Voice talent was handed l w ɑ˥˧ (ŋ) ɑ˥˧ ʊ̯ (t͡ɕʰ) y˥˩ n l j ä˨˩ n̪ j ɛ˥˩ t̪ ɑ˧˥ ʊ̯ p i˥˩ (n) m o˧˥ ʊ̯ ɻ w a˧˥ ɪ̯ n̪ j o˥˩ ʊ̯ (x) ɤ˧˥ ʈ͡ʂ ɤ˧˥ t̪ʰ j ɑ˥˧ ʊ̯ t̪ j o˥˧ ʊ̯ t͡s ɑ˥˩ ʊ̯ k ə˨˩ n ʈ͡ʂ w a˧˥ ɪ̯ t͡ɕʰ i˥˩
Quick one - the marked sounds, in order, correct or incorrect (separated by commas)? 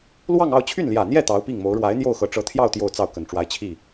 correct, correct, incorrect, correct